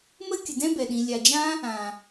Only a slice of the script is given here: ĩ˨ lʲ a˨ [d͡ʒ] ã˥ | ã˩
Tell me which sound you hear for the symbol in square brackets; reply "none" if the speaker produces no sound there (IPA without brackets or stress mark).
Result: d͡ʒ